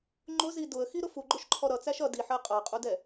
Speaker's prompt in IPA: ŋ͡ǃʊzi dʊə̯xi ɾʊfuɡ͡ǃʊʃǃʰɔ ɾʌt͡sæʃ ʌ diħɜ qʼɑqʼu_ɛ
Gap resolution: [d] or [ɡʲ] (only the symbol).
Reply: d